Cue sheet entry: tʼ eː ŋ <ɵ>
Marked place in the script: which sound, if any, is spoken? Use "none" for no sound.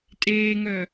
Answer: œ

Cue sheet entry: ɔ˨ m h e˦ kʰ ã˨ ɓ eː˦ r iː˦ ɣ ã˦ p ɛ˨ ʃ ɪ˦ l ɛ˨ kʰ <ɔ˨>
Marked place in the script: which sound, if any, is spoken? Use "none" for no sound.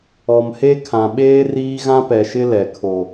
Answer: o˨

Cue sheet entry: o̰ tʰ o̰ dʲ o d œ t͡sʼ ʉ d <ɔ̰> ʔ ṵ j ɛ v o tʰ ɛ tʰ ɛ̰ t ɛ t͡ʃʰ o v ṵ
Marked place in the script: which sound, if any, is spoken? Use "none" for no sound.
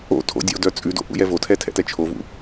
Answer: o̰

